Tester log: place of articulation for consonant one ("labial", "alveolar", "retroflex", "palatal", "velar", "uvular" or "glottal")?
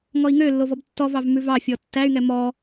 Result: velar